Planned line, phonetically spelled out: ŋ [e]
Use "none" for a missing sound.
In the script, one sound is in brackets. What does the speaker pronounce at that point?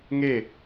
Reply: e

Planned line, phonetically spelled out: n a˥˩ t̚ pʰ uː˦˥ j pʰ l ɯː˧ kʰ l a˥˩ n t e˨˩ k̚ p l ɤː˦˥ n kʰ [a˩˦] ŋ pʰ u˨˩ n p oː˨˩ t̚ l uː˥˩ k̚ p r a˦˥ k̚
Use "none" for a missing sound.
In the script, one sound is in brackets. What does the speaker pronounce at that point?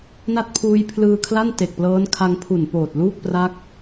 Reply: a˧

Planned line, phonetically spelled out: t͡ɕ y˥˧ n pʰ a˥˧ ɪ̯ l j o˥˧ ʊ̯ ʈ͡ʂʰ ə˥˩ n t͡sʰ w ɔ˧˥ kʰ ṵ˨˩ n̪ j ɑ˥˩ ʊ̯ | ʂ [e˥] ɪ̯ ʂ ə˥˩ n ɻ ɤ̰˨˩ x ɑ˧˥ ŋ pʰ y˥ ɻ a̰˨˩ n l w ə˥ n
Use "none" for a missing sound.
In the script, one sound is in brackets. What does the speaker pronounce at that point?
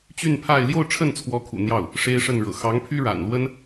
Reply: e˥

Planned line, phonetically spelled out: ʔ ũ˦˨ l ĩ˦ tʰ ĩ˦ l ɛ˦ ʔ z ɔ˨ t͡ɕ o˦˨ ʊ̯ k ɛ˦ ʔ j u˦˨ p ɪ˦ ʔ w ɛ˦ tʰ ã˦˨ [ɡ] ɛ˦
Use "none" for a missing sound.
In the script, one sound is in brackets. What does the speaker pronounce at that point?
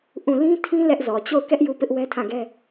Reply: ɡ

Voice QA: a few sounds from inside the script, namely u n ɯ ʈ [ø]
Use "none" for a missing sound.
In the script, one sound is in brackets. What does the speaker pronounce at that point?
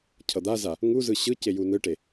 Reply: e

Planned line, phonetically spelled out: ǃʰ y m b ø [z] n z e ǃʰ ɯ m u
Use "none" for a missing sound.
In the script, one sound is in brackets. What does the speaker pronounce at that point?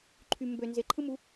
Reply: none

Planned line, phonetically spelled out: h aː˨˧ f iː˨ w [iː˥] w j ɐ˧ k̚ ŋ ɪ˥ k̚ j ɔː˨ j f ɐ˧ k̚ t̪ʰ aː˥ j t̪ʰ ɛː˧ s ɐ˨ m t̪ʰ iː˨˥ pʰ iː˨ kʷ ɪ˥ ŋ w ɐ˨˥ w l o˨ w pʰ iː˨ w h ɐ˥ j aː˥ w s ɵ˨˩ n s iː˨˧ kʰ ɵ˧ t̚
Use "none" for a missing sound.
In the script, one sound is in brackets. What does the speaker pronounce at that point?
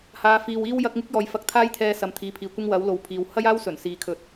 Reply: iː˥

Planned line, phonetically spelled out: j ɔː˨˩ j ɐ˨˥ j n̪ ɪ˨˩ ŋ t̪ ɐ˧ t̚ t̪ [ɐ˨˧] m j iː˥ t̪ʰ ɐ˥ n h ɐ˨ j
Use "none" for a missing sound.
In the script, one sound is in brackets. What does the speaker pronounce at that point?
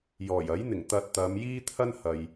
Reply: ɐ˨˧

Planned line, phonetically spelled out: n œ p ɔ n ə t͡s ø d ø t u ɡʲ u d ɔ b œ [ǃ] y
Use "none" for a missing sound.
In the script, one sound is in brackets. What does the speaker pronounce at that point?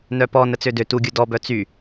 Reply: t͡s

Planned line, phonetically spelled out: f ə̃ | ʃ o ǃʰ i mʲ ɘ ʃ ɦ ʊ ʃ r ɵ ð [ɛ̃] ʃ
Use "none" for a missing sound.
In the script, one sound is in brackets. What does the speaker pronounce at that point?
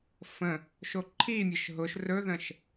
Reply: ə̃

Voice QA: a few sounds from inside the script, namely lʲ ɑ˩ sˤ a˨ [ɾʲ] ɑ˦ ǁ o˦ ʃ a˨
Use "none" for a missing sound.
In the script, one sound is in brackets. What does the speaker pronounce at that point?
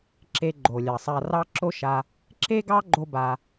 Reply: r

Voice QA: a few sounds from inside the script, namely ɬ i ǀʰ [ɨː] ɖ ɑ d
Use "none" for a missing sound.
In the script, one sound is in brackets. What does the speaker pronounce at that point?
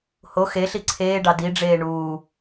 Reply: eː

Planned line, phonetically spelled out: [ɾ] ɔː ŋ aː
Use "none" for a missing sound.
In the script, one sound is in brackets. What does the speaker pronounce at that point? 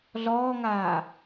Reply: ɮ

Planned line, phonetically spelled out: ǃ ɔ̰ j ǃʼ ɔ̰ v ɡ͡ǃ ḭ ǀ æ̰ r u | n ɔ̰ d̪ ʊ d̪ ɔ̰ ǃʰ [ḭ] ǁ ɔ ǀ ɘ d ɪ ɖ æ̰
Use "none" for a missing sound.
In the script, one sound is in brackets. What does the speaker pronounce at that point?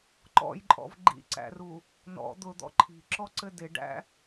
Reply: i̤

